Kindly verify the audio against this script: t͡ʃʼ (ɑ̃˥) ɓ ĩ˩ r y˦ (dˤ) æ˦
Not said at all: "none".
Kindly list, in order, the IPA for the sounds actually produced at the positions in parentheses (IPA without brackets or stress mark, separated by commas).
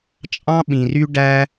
ɑ̃˥, ɖ